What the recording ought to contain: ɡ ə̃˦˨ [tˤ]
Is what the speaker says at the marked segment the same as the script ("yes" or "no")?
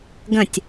no